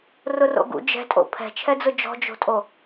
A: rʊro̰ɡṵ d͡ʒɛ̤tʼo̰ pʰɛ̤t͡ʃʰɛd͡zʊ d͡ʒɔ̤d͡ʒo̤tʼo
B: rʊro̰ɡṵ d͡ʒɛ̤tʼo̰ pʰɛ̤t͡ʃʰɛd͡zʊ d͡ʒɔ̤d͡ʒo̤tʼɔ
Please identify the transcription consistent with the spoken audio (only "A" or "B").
A